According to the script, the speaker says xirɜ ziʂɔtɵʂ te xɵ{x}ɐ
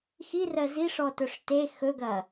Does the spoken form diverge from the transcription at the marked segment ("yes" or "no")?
yes